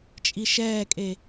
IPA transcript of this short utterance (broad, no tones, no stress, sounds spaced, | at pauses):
t͡ʃʼ i ʃ ɛː kʼ e